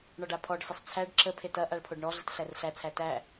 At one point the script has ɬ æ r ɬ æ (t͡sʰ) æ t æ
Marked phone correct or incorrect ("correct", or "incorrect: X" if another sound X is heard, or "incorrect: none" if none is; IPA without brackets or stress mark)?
correct